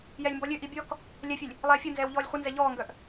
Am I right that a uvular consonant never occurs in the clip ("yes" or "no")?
no